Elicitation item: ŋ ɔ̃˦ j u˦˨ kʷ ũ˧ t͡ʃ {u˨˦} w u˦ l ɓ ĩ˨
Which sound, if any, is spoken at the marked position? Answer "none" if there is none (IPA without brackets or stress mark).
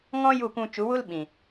u˨˦